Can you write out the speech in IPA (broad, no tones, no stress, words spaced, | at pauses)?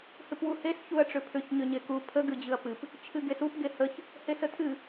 hɨpwuhes çuɐ̯ʈ͡ʂʏpʰʏç ɲʏɲeku pʰə ɡɨd͡ʑɨɐ̯pɨp | t͡ʃʰɨɡesup ɡehəç | hesətʰɨ